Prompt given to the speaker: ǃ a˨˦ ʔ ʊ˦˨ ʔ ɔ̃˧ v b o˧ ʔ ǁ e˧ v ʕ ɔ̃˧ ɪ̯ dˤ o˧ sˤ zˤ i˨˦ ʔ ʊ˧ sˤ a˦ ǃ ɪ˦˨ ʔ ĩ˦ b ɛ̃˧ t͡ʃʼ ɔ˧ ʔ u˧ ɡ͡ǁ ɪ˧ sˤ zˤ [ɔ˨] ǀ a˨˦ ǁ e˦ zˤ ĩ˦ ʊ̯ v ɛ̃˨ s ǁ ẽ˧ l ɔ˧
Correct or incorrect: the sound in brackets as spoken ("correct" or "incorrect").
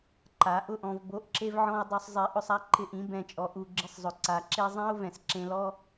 incorrect